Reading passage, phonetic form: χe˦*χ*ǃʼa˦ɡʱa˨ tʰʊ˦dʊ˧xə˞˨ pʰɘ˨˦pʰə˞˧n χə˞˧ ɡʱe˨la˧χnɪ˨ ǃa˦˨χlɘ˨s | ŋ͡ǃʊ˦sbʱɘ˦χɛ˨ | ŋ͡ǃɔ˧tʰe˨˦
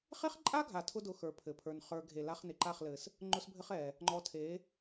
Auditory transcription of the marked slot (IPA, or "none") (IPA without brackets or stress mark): χ